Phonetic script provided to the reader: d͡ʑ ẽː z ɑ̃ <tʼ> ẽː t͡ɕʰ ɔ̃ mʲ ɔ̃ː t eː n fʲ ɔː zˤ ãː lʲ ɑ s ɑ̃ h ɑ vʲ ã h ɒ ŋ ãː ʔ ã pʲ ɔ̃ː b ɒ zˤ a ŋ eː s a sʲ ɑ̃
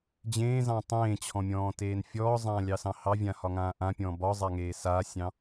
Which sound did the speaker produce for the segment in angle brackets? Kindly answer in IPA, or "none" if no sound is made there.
tˤ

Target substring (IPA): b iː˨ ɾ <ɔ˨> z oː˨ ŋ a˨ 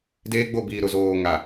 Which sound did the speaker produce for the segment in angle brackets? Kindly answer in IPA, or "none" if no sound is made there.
ʊ˨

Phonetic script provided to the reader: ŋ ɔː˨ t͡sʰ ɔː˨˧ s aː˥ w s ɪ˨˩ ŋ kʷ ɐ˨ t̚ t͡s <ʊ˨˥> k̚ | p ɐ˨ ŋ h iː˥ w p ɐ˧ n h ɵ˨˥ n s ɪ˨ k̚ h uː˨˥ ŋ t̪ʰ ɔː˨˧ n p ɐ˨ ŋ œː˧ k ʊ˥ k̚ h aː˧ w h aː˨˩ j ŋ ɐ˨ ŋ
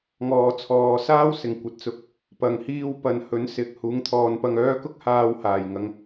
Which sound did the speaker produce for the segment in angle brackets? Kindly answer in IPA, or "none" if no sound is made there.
ʊ˨˥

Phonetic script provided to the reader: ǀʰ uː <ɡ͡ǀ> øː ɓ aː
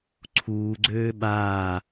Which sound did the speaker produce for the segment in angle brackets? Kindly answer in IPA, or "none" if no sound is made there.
ɡ͡ǀ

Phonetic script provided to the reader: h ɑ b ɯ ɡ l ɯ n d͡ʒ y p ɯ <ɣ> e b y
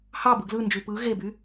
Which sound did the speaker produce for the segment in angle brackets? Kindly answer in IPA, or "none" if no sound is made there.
ɣ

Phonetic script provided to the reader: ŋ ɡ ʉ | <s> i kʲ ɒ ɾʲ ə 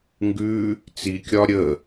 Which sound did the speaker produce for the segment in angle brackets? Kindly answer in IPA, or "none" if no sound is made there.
t͡s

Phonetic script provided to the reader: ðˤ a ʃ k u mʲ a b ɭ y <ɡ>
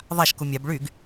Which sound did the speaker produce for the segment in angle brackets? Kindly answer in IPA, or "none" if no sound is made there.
ɡ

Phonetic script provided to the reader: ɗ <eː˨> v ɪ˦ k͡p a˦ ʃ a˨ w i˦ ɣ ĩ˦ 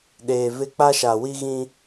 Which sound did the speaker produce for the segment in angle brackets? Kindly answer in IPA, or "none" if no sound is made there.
eː˨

